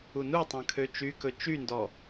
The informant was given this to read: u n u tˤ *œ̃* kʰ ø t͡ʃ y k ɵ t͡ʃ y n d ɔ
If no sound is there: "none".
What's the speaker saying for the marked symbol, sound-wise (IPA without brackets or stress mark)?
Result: œ̃